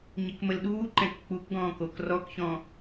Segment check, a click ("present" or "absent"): present